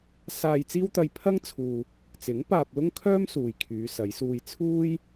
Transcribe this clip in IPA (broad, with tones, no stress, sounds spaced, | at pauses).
s aː˧ j t͡s iː˥ w t̪ ɐ˧ j pʰ ɐ˥ ŋ t͡sʰ uː˨ | t͡s ɪ˨˥ ŋ p aː˧ p̚ l ʊ˥ ŋ kʰ œː˥ m s uː˨ j kʰ yː˨˧ s ɐ˨˧ j s uː˧ j t͡sʰ uː˥ j